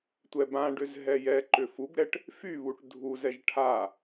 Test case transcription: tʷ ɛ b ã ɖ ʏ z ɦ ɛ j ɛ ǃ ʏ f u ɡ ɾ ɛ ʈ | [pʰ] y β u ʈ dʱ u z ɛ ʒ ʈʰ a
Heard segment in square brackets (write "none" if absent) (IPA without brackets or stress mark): f